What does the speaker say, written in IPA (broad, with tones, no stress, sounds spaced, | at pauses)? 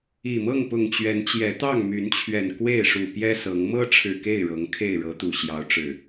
i˨˩ m ɤ˥˨ ŋ p ʊ˨˩ ŋ t͡ɕ ɥ ɛ˨˦ n t͡ɕ j ɛ˨˦ t̪ ɑ˥˨ ŋ m y˨˦ n t͡ɕʰ ɥ ɛ˨˩ n k w e˥˨ ɪ̯ ʂ u˨˩ p j ɛ˦ s ɤ˨˦ ŋ m ɤ˦ ʈ͡ʂʰ ɻ̩˨˩ k e˥˨ ɪ̯ ɻ ɤ˨˦ ŋ kʰ e˥˨ ɪ̯ ɻ ɤ˨˦ t̪ u˨˩ ɕ j ɑ˨˦ ʊ̯ ʈ͡ʂ ɻ̩˨˩